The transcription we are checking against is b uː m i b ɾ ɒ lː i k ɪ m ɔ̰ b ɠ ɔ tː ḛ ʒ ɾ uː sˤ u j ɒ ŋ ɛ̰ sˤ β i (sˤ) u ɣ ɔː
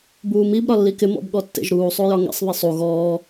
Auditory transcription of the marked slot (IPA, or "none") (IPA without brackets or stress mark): sˤ